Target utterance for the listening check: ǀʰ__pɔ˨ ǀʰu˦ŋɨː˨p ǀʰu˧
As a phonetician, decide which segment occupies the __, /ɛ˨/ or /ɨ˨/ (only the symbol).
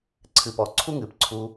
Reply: ɨ˨